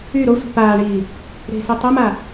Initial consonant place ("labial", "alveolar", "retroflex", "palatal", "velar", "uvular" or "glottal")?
alveolar